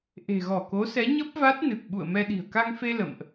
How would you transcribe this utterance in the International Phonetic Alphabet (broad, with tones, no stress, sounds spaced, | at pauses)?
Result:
ʔ e̤˨˩ ɣ ɔ˧˩ k o˨˦ s ɛ˨˦ ɲ ə˦˥ p̚ v a˦˥ t̚ n ɨ˨˩ k̚ ɓ ṵ˧˨ ə̯ m ɛ˧ ɗ i̤˨˩ ə̯ k a˧ ŋ f e˧ l ə̰˧˨ m ʔ